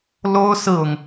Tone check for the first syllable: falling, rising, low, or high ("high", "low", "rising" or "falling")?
high